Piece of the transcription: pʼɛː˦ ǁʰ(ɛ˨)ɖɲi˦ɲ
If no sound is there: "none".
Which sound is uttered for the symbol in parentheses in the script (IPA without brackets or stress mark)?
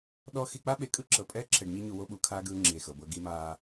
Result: ɛ˨